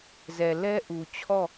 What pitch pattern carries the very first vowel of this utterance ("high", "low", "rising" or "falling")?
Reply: low